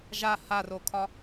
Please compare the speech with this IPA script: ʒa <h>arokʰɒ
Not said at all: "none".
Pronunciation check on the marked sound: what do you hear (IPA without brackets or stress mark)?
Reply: h